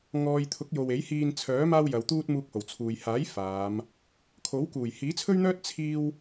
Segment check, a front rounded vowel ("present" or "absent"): present